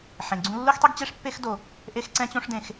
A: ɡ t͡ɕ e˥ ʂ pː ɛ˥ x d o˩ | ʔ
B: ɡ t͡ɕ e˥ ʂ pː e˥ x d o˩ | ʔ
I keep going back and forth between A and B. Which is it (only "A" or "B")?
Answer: B